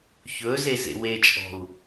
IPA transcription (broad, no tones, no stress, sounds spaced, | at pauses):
ç ɵ z e z ḛ w e t͡ʃʼ ɔ̤ u̯